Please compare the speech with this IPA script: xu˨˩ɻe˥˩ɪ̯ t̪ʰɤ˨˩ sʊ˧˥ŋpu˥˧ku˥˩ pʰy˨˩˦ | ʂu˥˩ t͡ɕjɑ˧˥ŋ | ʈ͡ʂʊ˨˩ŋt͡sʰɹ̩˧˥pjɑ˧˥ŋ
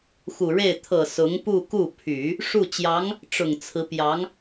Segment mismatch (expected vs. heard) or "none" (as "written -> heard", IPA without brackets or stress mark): none